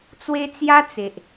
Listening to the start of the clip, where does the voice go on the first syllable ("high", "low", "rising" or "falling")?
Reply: high